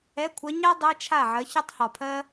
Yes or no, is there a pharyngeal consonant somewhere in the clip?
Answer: yes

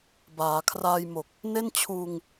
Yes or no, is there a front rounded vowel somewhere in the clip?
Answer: no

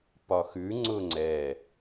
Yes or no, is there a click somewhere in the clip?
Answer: yes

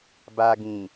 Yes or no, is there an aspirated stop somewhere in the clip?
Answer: no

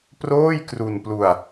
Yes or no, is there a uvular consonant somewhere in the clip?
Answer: no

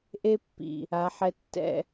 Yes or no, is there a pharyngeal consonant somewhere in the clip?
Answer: yes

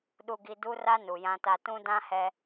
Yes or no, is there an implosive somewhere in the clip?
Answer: yes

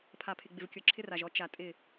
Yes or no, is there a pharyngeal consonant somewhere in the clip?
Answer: no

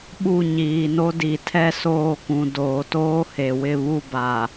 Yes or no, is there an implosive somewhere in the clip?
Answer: yes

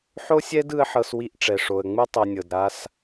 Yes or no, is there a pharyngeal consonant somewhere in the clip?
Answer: yes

